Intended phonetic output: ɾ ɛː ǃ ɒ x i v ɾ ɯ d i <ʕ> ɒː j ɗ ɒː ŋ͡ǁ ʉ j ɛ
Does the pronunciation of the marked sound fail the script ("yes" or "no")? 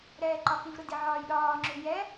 no